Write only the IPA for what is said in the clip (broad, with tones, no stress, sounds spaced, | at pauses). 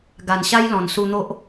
ɡ a˨˩ n ɕ a˦ j l ɔ̃˨˩ n s u˧ n̪ o˦ ʔ